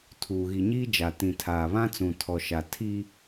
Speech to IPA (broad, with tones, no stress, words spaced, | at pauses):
tʰuː˨ɣi˨ɲiː˦d͡ʒa˨ tĩ˨tʰaː˨ βã˦t͡sũ˨ tʰɔ˨ʃa˨ tʰi˦